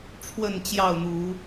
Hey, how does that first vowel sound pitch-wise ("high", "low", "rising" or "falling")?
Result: falling